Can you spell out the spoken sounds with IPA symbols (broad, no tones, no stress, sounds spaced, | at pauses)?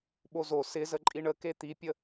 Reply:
ɓ o z o s ɪ z ə ǃʼ i ɳ ə k e t̪ i pʲ ə